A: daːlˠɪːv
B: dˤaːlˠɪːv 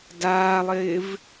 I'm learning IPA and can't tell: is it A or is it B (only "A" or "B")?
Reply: A